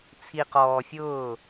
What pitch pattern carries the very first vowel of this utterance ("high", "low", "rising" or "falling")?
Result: low